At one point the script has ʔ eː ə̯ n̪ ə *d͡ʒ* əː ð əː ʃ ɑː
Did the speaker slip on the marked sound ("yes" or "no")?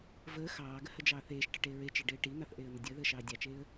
yes